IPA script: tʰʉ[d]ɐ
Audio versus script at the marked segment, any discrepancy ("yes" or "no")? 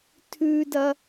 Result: no